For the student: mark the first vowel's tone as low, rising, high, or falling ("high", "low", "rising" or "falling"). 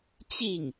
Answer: falling